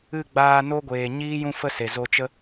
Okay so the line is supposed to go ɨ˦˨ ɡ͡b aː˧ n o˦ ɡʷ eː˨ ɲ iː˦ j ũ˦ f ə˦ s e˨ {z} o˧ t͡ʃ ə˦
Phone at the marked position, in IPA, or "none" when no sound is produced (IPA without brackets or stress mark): z